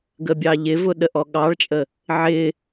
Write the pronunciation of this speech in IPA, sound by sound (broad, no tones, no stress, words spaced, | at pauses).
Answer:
ɡəbʲɑʎɪvʊ ɗəʔɔɠɑɭt͡ʃʼə | ʕɪ